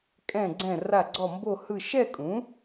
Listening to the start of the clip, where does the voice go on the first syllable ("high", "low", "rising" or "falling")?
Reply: falling